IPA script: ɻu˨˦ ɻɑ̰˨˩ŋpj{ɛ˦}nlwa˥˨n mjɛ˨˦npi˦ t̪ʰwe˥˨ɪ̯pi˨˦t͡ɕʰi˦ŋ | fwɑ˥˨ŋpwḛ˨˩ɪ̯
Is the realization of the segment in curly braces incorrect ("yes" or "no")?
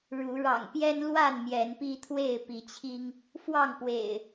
no